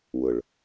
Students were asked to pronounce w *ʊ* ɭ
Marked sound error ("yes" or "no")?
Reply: no